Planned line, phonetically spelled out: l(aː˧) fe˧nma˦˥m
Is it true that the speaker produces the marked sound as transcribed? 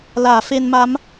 no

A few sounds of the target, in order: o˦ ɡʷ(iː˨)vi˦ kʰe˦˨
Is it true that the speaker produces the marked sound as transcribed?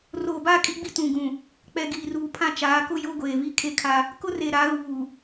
no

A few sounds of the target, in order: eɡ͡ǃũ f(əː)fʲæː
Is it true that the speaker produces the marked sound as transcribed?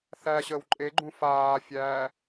no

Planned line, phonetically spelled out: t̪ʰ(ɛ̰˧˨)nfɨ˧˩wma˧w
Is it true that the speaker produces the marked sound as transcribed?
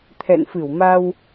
yes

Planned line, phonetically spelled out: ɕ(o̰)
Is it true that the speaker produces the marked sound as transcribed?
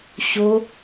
no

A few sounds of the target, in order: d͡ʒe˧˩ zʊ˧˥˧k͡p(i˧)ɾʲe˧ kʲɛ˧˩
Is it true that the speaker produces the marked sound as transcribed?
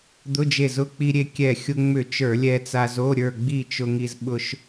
yes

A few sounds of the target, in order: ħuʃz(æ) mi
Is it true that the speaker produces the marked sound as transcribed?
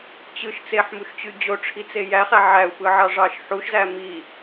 yes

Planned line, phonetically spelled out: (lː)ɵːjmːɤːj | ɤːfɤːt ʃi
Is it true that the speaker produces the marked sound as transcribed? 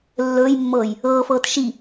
yes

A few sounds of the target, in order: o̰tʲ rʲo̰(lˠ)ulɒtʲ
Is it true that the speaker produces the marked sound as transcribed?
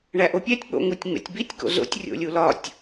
no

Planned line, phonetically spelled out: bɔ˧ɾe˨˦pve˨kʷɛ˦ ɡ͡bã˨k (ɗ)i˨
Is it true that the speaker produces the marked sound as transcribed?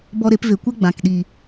yes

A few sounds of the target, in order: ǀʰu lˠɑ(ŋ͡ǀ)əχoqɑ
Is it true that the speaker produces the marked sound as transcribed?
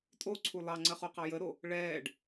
yes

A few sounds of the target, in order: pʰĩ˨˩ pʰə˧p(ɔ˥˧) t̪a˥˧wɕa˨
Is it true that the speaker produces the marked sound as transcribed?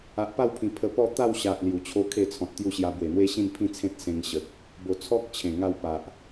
yes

